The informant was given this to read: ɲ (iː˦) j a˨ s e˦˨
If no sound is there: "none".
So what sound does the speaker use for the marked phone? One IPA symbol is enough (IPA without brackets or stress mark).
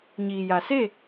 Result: iː˨